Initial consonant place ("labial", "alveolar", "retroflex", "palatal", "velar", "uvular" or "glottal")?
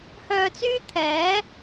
glottal